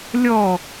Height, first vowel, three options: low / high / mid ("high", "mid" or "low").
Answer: mid